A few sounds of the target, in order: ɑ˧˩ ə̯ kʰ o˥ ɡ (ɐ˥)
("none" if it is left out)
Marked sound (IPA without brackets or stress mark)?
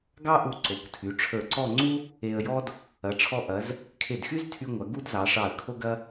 ɐ˥